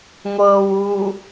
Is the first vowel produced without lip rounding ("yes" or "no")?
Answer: yes